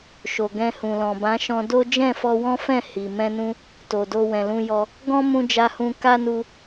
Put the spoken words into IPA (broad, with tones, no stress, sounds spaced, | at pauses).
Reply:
ʃ o˨ ɡ ɛ̃˧ h ũ˨ l ɔ̃˨ b ã˨˦ ʃ ɔ̃˧ d o˦ d͡ʒ ɛ̃˦˨ f ɔ˧ w ɔ̃˦ f ɛ̃˦˨ h i˨ m ɛ̃˧ n ũ˧ | t o˨ d o˧ w ɛ̃˨ l ũ˧ j ɔ˧ | ɡ ɔ̃˦ m ũ˧ d͡ʒ a˧ h ũ˧ k a˦ n u˧